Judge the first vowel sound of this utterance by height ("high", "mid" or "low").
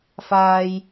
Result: low